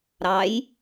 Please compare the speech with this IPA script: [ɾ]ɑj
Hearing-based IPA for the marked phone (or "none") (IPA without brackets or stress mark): ɾ